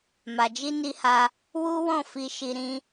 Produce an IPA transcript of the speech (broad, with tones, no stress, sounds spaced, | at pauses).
m a˨ d͡ʒ i˧ n i˧ h a˧ | w u˦ w ɔ̃˦˨ f i˧ ʃ i˧ ɾ ĩ˦